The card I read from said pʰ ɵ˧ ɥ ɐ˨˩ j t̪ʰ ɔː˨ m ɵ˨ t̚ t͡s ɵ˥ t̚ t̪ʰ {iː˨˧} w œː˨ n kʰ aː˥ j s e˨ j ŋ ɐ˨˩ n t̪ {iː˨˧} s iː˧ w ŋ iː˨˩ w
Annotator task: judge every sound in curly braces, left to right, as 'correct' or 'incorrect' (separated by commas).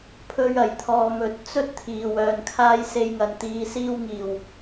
incorrect, correct